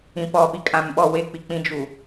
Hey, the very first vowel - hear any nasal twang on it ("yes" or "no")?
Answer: yes